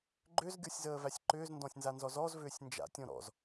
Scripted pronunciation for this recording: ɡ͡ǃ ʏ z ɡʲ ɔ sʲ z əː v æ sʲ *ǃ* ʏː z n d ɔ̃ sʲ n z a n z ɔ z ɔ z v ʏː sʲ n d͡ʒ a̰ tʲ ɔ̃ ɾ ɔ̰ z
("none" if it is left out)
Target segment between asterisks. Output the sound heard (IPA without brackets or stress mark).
ǃ